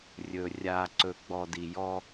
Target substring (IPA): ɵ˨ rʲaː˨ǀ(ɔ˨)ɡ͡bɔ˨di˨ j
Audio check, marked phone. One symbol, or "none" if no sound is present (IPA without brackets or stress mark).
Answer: ɵ˨